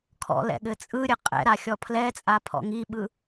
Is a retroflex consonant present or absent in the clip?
absent